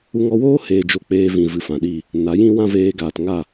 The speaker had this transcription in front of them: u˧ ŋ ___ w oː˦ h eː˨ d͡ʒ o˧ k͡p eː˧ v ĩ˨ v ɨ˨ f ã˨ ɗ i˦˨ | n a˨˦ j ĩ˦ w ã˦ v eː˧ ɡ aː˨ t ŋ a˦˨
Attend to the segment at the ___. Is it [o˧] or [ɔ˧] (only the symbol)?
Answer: ɔ˧